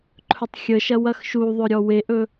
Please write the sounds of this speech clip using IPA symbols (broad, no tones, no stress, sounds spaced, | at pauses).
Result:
ǃʰ ɵ tˤ xʲ ə ʃ ɐ w ɐ x ʃ u ðˤ ɵ ɾʲ ɔ w e ʔ ɵ